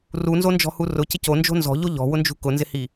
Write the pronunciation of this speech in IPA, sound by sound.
r u n z o n d͡ʒ ɔ̤ h u r ʊ c ɪ c o n d͡ʒ o̤ n z ɔ̤ ʎ o ʎ ɔ̤ w ʊ n d͡ʒ ṳ k ʊ n z ɪ h i

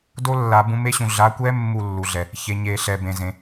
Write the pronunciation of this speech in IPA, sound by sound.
d o˦˥ lː a˨˩˦ b ũ˨˦ m e˦˥ ɕ ũ˨ ɮ a˨˦ kʷ ɛ˦˥ mː u˥˨ lː u˨ ɮ ɛ˨ | ç e˨ ɲ e˨˩˦ ɬ ɛ˨ b ẽ˨ z ẽ˨

